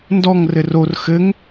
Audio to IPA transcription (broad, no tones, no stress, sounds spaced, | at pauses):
n d ɔ ŋ r ɘ r o r x ɘ ŋ